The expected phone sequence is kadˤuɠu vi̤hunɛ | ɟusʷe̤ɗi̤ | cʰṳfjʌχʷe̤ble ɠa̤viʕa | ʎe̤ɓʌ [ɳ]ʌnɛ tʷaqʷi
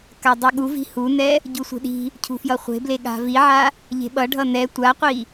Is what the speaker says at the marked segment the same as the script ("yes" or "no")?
no